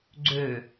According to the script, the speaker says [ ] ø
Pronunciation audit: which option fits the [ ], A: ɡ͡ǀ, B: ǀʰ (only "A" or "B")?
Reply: A